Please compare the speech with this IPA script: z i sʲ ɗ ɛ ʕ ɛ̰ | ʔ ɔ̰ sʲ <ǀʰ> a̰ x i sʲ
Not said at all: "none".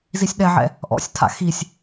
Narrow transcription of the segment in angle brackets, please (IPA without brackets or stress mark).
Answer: tʰ